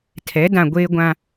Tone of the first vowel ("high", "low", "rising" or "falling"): rising